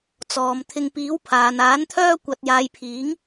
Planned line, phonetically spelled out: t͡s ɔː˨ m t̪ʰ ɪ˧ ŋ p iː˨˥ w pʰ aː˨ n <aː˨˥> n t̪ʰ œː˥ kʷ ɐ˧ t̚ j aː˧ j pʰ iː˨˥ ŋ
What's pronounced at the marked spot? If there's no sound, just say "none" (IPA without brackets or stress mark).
aː˨˥